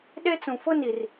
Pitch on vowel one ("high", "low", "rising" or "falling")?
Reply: high